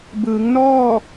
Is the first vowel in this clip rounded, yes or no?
no